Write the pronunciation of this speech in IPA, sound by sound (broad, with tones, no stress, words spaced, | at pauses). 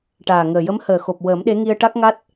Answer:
ʈaː˨˩ŋəː˨˩ jə˧˥mhəː˨˩xo˨˩p̚ wəː˨˩˦mɗe˧˥ŋi˧ə̯ ʈa˦˥k̚ŋa˦˥t̚